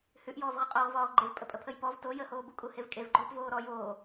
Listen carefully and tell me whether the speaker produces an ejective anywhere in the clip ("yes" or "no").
yes